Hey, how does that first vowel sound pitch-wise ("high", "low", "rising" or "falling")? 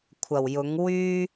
low